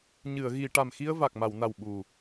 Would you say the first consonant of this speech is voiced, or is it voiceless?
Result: voiced